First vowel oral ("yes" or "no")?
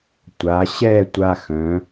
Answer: yes